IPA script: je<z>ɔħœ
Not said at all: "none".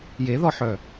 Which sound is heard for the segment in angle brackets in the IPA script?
ð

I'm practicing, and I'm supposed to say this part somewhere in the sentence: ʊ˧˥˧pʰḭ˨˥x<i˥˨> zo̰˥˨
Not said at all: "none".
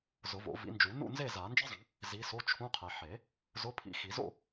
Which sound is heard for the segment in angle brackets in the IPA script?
i˨˩˦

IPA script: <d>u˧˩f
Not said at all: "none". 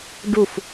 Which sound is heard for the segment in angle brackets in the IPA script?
ɖ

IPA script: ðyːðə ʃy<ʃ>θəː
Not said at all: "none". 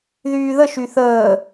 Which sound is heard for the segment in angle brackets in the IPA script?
none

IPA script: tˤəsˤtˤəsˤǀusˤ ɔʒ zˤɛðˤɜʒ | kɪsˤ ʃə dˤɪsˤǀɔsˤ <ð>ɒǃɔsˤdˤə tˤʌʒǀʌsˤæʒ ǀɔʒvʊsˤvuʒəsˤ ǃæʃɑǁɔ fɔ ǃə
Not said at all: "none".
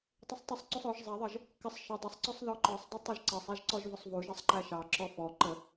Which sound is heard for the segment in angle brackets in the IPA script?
ð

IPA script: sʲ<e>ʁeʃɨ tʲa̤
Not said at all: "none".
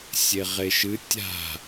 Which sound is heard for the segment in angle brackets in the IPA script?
e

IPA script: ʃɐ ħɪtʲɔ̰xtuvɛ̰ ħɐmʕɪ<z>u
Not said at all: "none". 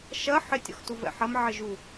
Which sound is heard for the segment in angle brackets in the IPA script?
ʒ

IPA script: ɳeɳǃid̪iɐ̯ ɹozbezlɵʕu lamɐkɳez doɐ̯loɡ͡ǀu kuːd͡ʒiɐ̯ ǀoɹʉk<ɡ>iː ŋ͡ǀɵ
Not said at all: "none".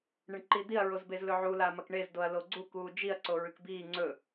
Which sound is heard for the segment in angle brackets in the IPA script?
b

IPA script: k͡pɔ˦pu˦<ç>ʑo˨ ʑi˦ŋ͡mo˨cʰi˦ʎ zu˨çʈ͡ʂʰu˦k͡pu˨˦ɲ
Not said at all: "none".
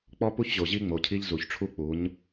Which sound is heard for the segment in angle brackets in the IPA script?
ç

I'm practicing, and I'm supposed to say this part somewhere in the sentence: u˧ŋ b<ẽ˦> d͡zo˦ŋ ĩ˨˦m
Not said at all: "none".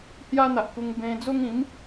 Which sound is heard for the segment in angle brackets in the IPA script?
ẽ˧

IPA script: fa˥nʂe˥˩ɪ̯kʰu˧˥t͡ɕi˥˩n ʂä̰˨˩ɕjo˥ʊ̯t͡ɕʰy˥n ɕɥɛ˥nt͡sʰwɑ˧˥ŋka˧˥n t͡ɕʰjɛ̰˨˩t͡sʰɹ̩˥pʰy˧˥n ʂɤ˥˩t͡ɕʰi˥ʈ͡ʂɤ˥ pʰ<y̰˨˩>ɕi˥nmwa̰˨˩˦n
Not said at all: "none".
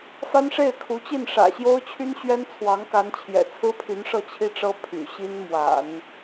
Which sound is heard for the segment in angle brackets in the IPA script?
y̰˨˩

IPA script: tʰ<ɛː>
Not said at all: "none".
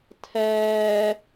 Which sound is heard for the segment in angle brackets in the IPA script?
ɛː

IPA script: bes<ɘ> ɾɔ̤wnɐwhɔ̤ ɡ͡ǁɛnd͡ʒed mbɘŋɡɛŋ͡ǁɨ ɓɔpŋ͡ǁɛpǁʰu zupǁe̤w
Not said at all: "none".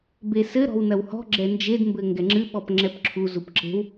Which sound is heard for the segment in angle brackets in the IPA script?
ɘ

